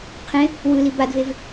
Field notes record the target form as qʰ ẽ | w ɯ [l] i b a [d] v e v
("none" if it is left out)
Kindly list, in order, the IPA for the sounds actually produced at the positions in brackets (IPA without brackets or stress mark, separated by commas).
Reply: l, d